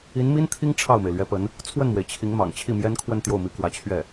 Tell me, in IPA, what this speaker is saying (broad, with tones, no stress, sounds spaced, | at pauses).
i˧˥ n m i˥ n t̪ʰ i˥ ŋ ʈ͡ʂʰ ɑ˥˩ ʊ̯ m e˩ ɪ̯ l ɥ ɛ˧˥ p ə˧˥ n | t͡sʰ w ə˥˩ n m w e˩ ɪ̯ t͡ɕʰ i˧˥ ŋ m ɑ̰˨˩ ŋ t͡ɕʰ i˥˩ m j ɛ˥ n kʰ w ə˥˧ n t̪ j o˥˩ ʊ̯ m i˧˥ k w ä˧˥ t͡ɕʰ ɥ ɛ˥˩